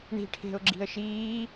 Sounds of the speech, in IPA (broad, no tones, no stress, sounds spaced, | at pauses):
ɳ i̤ ʈʰ e̤ ʊ̯ ɡ͡ǁ i̤ ə̯ ʃ iː